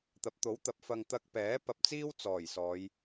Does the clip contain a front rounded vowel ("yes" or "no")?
no